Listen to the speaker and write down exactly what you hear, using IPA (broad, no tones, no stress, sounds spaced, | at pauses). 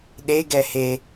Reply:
ɗ e ɡ ɛ h e